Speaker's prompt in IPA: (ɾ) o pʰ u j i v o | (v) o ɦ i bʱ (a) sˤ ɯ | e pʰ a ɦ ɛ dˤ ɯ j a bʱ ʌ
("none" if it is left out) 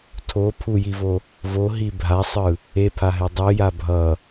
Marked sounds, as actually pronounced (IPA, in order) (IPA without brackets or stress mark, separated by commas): tʰ, v, a